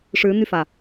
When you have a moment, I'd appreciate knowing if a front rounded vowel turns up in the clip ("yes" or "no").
yes